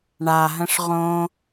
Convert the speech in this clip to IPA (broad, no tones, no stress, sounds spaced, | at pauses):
ɳ a ɦ ə̃ ʂ ʁ õ